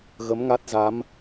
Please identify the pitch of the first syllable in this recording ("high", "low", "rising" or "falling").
rising